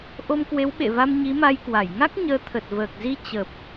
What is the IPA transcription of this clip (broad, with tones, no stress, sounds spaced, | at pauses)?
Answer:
ʔ o˧ m k w e˨˦ w ɓ ḛ˧˨ v a˧ m ɲ i˨˦ m a˧ j k w a˧˩ j ŋ a˦˥ k̚ ɲ əː˨˦ t̪ʰ ə˨˩ t̚ v əː˨˩ k̚ z i˧ t͡ɕ ə˨˩ p̚